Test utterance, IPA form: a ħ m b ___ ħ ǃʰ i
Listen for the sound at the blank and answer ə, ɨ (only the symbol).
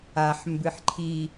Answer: ɨ